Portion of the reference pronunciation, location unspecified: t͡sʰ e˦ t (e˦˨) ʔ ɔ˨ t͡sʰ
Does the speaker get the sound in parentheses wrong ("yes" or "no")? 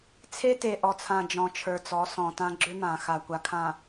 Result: yes